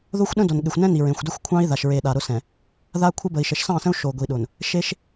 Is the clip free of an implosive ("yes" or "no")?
no